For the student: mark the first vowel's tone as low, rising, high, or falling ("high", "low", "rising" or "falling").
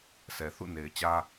low